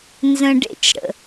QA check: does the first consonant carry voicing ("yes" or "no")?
yes